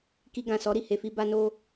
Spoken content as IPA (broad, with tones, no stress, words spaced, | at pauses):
ki˧ɡã˨sɔ˨˦ ɾi˦˨he˨fi˧ ba˧no˧